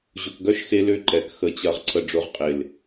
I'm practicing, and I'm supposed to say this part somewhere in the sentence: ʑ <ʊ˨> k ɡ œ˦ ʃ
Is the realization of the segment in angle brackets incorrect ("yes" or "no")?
no